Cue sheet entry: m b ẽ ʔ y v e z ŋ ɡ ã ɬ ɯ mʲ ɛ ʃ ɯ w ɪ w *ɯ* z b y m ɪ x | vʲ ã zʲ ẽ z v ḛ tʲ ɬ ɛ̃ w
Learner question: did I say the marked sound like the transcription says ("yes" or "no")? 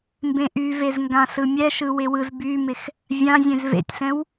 yes